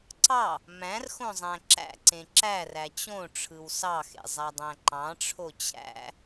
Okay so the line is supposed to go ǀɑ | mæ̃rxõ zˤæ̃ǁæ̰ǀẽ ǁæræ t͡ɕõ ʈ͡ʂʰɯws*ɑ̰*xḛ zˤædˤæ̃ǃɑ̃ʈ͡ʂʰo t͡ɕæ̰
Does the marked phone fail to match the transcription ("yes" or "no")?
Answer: yes